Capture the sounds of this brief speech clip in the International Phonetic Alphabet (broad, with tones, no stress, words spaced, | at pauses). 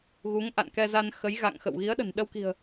ɣu˨˦ŋʔa̰˧˨nkɛ˧za˧n xə˨˦jɣa̰˧˨ŋxə̰˧˨w ɣi˨˦ə̯ɗə̤˨˩nɗə˧w ki̤˨˩ə̯